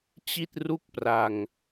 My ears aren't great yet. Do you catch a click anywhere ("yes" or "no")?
no